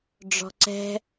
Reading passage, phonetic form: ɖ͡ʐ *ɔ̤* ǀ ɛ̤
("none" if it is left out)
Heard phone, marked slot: ɔ̤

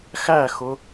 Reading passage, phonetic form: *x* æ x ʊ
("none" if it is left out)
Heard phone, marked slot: x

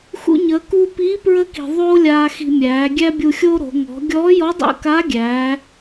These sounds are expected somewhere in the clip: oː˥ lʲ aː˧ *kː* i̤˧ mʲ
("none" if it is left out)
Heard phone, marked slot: x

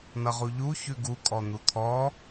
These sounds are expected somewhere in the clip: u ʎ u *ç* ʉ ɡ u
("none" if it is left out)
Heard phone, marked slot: ç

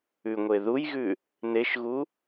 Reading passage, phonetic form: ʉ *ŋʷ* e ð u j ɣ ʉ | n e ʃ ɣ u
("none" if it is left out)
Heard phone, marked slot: ŋʷ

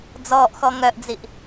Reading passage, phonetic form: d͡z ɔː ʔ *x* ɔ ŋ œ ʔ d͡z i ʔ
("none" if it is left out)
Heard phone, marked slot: x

